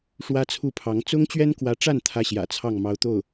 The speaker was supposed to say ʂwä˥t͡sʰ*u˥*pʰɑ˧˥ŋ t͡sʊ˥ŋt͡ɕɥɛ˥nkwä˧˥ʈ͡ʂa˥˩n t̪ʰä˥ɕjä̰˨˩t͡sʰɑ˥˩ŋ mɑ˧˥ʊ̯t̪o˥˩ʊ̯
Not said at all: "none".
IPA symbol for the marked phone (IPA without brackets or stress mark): u˥˩